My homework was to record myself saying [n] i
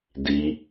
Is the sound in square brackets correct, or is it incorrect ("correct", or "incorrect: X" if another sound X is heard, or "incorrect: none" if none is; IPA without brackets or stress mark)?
incorrect: d